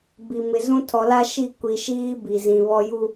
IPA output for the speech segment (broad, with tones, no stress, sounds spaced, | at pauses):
b i˨ m ɪ˨ z ũ˦ tʰ ɔ˨ l a˦ ʃ i˦˨ kʷ i˨ ʃ iː˦ b i˨ z ĩ˨ β ɔ˦ j u˦˨